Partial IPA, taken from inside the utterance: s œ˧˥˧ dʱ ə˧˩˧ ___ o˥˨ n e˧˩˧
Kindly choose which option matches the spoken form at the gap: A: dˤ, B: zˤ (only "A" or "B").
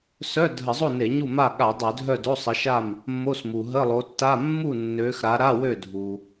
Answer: B